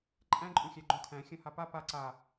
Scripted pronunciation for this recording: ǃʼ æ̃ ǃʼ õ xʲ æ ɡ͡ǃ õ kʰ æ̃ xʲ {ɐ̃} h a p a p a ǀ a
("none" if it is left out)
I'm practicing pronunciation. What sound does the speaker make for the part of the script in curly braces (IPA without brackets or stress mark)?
ɐ̃